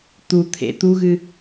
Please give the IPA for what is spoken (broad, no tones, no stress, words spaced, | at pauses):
t̪ut̪ʰḛ t̪uɣɨ